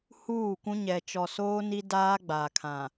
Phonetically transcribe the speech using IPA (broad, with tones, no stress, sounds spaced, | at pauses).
h uː˦˨ kʷ ũ˦ ɲ ɛ˨ t͡ʃ ɔ˨ s oː˦ n i˦ d aː˦ ɡ͡b a˨ kʰ ã˨